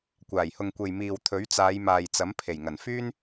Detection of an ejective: absent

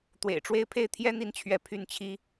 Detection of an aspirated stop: present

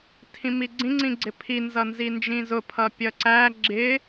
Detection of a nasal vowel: present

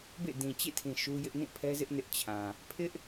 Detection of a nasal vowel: present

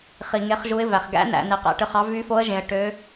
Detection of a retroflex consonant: present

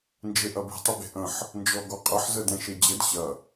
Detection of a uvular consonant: present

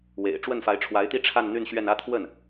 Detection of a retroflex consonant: present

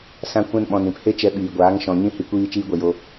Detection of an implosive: present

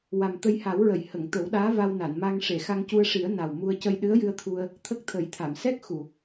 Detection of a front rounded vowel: absent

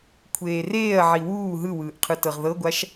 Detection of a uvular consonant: present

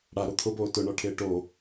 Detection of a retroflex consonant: present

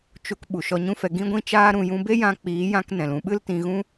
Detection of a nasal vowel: present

